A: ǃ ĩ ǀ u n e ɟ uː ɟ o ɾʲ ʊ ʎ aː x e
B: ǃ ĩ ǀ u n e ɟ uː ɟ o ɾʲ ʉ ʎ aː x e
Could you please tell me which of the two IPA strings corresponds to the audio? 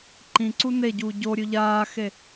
B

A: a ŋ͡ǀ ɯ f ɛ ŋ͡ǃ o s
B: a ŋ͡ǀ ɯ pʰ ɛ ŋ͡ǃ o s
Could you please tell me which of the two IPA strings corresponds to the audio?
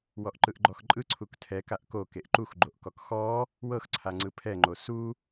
B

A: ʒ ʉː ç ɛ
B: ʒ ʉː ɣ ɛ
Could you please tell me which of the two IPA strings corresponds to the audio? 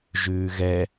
B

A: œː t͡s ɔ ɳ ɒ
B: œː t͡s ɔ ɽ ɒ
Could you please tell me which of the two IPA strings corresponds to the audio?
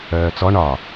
A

